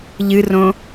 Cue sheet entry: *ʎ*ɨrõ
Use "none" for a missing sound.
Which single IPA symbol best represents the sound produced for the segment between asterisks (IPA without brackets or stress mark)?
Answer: ʎ